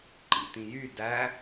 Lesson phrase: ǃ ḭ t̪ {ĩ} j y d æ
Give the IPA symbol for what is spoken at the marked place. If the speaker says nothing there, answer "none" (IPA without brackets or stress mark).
ĩ